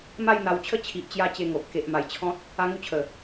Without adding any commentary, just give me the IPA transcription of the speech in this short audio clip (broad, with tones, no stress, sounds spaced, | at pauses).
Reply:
m a˥˧ j n̪ a˧ w t͡ɕʰ ə˥˧ t͡ɕʰ i˨ ʔ t͡ɕ j a˧ t͡ɕ e˧ ŋ o˨ ʔ k e˨ ʔ m a˨˩ j t͡ɕʰ ɔ̃˦ t̚ | a˦ ŋ u˥˧ t͡ɕʰ ə˨˩